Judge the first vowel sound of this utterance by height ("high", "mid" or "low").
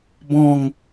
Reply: mid